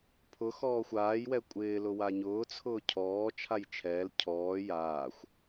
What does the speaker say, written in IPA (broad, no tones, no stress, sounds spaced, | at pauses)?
pʰ ʊ x ɔː xʷ aː j w ɛ kʷʼ ɪː l ʊ w a ɲ ʊː t͡sʰ ʊː cʰ ɔː t͡ʃʰ a j t͡ʃʰ ɛː l cʰ ɔː j aː xʷ